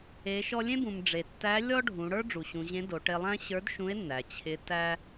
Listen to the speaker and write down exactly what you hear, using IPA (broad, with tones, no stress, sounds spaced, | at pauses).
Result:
e˩˧ ʃ ɔ˧ lʲ ẽ˥ b ũ˩ m ɖ͡ʐ e˩ tː æ˧˥ lʲ ɔ˥ ɖʱ ũ˩˧ ɽ ə˞˥ ɖ͡ʐ u˩ ɕ ũ˩˧ ʑ ẽ˧˥ d o˩˧ ʈ e˧ lˠ æ̃˥ ɕ ə˞˧˥ d ʃ ũ˧˥ e̯ nː æ˩ t͡ɕʰ ɪ˧˥ t æ˥